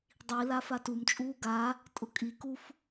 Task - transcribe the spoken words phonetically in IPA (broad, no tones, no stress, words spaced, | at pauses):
dˤila fatumt͡ʃʼuː ɡa | tʼʊkʼikuf